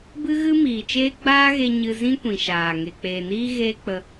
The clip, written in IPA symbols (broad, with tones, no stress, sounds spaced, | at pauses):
b ɨ˦ ɣ ɨ˦ m iː˨ t͡ʃ eː˦ ɡ͡b aː˦ ɣ e˧ ɲ ɨ˧ z ĩ˦ kʷ ĩ˨ ʃ aː˨ ŋ e˨ k͡p eː˨ n iː˦ ɣ eː˦ k͡p ə˧